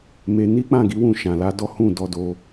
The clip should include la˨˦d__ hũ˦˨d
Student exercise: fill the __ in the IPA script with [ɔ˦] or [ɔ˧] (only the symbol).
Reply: ɔ˦